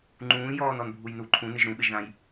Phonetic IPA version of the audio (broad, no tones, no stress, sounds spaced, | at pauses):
ŋ͡ǃ ũː j ɔː n ɔ n bʱ u j n u ǃʰ ũ n ɪ ʒ ɾ ũ ɓ ɪ ʒ ð ã j